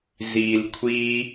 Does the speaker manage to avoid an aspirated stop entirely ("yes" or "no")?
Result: no